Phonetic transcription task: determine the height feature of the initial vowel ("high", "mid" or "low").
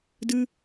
high